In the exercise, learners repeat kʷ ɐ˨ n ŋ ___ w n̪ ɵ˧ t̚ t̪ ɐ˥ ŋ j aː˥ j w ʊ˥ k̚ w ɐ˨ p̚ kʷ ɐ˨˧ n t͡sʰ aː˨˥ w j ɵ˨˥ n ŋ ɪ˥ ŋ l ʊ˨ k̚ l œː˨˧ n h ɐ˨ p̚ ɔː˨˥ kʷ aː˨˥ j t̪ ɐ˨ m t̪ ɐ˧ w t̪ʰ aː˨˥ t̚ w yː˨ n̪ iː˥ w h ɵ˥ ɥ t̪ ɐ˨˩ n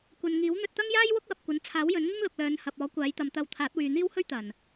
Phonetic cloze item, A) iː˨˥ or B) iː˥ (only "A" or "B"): A